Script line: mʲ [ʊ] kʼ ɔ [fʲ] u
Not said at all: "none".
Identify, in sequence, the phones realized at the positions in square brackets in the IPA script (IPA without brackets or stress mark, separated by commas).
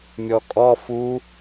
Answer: ɔ, f